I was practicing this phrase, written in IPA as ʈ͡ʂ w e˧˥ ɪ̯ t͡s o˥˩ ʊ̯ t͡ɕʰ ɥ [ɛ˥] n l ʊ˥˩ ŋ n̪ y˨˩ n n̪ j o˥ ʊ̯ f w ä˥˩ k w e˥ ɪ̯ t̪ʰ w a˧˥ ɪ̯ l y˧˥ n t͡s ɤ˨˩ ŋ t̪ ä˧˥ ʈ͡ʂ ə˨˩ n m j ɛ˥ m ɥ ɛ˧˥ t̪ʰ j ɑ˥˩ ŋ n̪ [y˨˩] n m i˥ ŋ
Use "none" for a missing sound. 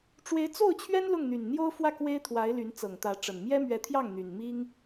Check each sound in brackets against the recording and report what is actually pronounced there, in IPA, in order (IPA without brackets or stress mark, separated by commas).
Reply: ɛ˥, y˨˩